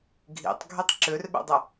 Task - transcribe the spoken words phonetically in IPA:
ɡʱ ḭ tˤ ɡʱ e tˤ ǁ ø r ɓ ɛ̰ dˤ ɤ

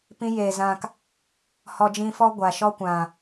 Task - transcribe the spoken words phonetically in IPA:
p ĩ˦ j eː˨ z ã˧ k | h ɔ˧ d͡ʒ ĩ˧ f ɔ˦ ɡʷ a˨ ʃ ɔ˦ kʷ ã˨

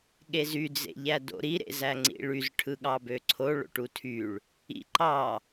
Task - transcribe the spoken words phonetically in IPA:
ɠ e z y d͡z ḛ ʎ æ d o̰ ɾ i ɾ ḛ z æ ŋ͡ǀ ḭ ɭ y z ʈʰ ɯ ɠ ɑ b ø ǀʰ o ɭ o̰ ʈ u tʰ y ɭ | ḭ ǃ ɑ

